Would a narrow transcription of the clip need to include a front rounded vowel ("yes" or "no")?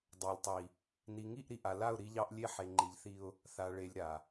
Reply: no